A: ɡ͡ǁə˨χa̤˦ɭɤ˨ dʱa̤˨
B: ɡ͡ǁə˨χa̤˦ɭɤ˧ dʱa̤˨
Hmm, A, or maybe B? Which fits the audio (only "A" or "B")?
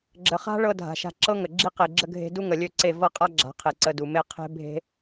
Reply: B